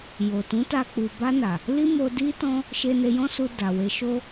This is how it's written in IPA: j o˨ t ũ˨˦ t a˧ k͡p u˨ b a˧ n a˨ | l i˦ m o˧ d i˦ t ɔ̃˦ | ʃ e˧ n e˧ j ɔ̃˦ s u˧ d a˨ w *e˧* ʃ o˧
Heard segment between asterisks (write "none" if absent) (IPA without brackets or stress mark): e˨˦